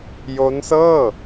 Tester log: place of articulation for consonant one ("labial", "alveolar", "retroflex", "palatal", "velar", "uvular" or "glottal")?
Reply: palatal